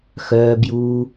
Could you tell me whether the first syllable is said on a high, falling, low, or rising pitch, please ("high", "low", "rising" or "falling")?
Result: low